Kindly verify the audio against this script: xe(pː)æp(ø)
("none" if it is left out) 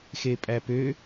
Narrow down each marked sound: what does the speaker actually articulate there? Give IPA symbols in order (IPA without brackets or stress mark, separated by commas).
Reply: pʼ, ø